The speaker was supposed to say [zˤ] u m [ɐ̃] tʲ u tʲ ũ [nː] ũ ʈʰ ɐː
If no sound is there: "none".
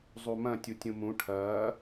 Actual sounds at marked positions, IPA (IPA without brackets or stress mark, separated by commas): zˤ, ɐ̃, m